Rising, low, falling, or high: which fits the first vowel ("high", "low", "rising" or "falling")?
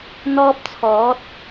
high